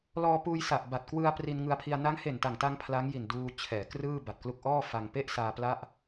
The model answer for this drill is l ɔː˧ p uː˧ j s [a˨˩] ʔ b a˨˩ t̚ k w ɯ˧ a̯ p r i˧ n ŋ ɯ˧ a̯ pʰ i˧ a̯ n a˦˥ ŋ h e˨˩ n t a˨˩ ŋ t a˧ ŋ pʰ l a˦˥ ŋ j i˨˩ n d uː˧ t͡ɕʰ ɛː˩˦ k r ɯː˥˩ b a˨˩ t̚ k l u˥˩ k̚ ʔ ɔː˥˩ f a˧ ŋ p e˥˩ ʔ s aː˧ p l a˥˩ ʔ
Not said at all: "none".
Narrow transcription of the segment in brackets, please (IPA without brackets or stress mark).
a˨˩